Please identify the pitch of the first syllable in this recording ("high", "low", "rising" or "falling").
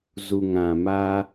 low